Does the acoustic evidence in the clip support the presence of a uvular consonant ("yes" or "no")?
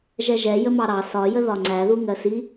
no